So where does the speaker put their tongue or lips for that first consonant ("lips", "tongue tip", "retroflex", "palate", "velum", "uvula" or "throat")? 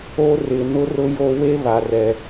tongue tip